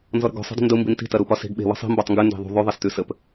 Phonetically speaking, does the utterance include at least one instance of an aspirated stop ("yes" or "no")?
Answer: no